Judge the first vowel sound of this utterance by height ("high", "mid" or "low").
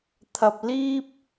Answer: low